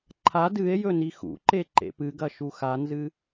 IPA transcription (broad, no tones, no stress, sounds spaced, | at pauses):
ǃʰ a d ɨ e̯ j ɵ n i x ṵ ǃ e ǃ ḛ p ɨ ɡ ɐ ʃ u x a n z ɨ